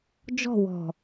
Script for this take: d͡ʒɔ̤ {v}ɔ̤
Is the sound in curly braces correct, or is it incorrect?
incorrect